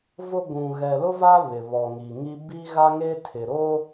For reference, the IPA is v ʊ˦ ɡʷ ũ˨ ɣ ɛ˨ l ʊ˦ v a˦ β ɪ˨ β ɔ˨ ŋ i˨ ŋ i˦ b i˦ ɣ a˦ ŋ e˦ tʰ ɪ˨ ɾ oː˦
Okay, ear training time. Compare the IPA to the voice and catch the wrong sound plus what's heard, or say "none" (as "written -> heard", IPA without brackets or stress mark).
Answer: none